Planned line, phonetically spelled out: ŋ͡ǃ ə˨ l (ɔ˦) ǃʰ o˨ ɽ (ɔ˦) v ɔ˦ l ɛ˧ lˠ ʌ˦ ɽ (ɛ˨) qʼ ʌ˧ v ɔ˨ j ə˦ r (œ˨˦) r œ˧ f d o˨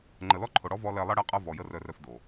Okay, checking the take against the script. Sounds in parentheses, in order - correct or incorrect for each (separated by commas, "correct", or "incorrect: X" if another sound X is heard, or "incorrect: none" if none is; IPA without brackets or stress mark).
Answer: correct, correct, incorrect: ɛ˧, incorrect: œ˧